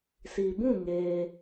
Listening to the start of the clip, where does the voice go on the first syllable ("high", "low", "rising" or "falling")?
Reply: low